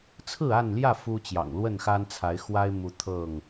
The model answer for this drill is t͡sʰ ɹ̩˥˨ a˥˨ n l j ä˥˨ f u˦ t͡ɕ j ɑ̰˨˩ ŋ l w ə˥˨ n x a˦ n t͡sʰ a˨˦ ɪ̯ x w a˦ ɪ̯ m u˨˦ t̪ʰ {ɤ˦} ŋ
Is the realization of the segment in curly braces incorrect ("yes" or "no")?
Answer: yes